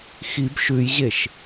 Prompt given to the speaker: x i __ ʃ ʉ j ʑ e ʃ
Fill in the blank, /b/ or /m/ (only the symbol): b